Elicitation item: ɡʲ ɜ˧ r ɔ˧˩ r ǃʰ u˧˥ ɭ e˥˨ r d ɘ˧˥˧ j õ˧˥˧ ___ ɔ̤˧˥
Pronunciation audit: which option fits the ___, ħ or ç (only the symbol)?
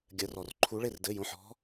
ħ